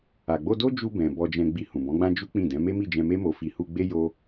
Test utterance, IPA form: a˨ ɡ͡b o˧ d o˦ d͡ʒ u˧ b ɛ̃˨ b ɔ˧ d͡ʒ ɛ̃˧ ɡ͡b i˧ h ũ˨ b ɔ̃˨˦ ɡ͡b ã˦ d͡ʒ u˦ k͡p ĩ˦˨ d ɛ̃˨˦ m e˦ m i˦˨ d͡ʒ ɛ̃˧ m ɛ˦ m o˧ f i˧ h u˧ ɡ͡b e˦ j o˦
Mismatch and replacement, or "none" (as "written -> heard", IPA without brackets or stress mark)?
ɛ˦ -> e˦